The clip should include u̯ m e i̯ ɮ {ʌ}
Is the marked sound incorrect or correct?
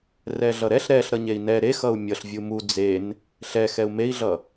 correct